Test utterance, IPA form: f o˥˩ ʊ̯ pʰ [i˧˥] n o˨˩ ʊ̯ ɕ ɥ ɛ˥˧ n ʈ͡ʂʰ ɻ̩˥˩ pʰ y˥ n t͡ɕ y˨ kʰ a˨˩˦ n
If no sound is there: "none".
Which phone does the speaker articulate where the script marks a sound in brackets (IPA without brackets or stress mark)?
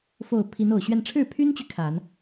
i˧˥